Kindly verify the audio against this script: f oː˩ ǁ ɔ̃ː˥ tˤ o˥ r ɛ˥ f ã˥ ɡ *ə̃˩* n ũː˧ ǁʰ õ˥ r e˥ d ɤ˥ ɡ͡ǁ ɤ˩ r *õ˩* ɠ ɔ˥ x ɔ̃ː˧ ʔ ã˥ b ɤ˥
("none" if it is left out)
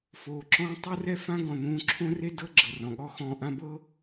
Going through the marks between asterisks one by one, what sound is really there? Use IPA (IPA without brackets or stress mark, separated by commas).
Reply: ɔ̃˩, ɔ̃˩